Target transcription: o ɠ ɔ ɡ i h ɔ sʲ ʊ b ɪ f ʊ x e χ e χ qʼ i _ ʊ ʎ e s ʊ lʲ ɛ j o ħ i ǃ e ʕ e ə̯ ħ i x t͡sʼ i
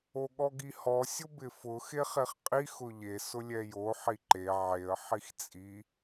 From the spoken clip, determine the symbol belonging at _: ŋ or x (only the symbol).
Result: x